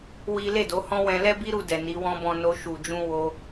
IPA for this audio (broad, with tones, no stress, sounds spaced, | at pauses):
w i˦ l e˦˨ d o˨˦ h ɔ̃˦ w ɛ̃˧ l ɛ˦ b i˦ ɾ u˧ d ɛ˨ n i˨˦ w ɔ̃˦ b ɔ̃˧ n o˧ ʃ u˨ d͡ʒ ũ˧ w o˧